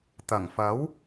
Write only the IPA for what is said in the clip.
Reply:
t̪ɐ˨˩ŋfɐ˨˥w

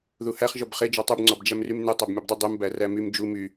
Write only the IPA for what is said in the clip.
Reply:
ðuhæχ ʒɔbχe d͡ʒɔtˤub ŋ͡ǀɔbd͡ʒæmrymne tˤæbmʲɔbdˤy dˤum bæræmym d͡ʒu my

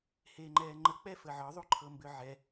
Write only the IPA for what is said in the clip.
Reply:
heːŋ͡ǃɛːŋ͡ǃə k͡pɛfəʕɒ ðˤuǃʰɤmbʏʕɛ

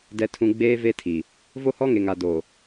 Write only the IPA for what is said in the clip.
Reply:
dɛ˨tʰũ˨ ɡ͡beː˦ve˦tʰi˨ | vo˦hɔ˦ŋe˨ŋa˨ do˨

